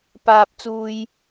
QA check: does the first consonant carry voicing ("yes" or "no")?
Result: no